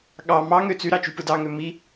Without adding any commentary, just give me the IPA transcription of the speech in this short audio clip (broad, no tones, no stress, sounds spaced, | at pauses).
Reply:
ɠ ɑ m ɑ ŋ ø t͡s y ɾ ɑ t͡ʃ y p ɯ d ɑ ŋ ø m i